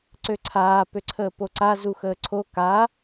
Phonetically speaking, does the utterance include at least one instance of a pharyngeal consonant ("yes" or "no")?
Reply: no